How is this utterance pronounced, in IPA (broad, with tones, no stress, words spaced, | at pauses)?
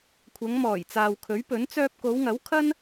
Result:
kʷʰɐ˨˧ŋ mɔː˨˩jt͡saː˨wkʰɵ˨˥ɥpɵ˨˥n t͡sœː˧p̚ko˨˧wŋɐ˨˥w kʰɐ˥n